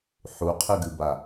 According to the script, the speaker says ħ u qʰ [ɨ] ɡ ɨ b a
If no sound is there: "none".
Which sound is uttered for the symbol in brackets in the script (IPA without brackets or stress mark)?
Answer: ɨ